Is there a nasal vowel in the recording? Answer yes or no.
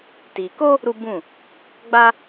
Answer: yes